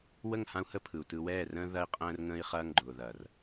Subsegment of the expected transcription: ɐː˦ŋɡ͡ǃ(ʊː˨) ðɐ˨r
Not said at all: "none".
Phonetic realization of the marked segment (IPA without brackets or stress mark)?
ʊː˨